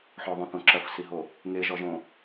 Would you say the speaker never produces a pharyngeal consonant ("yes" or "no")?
no